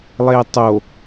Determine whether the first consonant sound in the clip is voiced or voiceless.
voiced